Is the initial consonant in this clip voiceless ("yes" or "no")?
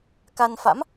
yes